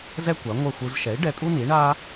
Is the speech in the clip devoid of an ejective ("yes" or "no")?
no